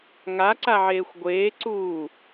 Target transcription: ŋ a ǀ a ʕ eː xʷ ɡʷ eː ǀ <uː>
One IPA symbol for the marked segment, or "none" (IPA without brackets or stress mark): uː